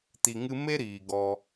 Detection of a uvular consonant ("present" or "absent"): absent